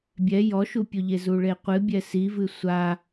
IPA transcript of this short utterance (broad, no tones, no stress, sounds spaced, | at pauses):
bʲ ɛ j ɔ ʃ u pʲ o ʎ e z u ɭ e qʷ ɨ bʲ ɛ s i v ɨ sʷ a